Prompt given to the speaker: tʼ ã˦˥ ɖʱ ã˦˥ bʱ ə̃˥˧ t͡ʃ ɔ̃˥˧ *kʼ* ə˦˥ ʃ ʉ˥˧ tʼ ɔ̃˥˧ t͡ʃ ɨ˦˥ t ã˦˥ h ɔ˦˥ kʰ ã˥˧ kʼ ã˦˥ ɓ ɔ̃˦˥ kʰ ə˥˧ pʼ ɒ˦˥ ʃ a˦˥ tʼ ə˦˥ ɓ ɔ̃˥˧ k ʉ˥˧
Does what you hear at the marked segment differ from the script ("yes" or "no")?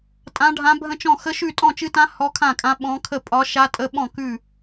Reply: yes